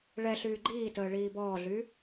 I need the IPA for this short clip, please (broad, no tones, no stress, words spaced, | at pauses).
ɭɛ ɬyːɡ͡ǃiːtəː ɭiːbɔːɮy